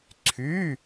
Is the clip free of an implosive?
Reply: yes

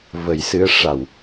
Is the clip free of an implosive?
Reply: yes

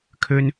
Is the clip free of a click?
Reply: yes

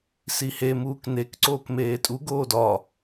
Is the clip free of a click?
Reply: no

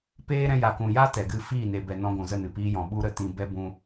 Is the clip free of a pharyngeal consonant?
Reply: yes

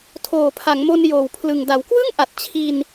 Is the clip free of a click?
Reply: yes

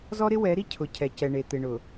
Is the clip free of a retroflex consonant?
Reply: no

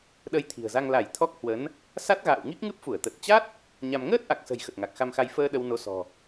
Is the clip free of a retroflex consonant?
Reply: yes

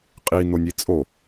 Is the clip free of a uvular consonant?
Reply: no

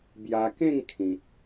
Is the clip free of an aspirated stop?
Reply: no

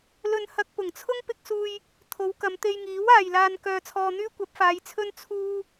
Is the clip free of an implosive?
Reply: yes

